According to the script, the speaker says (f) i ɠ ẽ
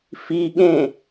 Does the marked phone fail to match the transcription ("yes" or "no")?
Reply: no